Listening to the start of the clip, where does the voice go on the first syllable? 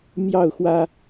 falling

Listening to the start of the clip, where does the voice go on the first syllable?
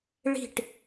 falling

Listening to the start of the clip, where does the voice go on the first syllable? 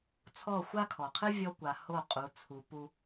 falling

